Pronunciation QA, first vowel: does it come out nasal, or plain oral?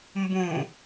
nasal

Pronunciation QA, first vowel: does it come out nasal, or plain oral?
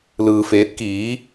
oral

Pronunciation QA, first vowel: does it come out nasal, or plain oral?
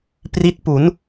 oral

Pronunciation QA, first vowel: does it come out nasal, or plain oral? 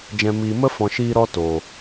nasal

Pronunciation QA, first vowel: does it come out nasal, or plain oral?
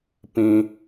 nasal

